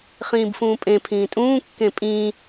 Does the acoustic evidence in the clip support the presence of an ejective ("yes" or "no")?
yes